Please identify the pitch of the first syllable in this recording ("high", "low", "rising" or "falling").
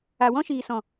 low